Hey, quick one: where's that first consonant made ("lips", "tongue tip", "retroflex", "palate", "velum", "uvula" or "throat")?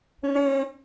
tongue tip